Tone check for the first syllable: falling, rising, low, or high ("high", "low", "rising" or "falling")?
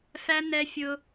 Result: high